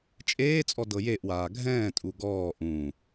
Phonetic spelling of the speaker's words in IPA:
t͡ʃʼ eː t͡sʼ ɔ d ɤ j e ʔ w aː ɡʱ ɛ̃ː tʼ u ɡ ɔː ʔ ũ

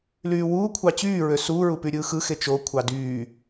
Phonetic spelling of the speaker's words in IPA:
l yː w uː kʷʰ ɑ t͡ɕ yː ɹ ø s uː ɹ u p y ɾʲ ɯː x ɯ x e t͡ʃ o kʷʰ ɑ d yː

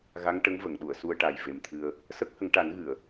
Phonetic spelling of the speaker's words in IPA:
ɣ a˧˥ ŋ ʈ ə˧˥ ŋ v ə˨˩˨ ŋ ɗ u˨˩˨ ə̯ s u˧ ə̯ ʈ a˨˩ j v e˨˩ m t̪ʰ ɨ˧ ə̯ | s ə˦˥ k̚ h ə˨˩˦ ŋ ʈ a˨˩˦ n ɣ ɨ˨˩˨ ə̯

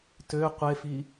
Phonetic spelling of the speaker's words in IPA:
t ø qʷ e f i

